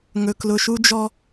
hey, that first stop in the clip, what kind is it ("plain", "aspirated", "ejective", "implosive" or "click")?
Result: plain